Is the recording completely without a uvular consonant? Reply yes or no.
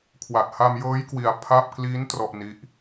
yes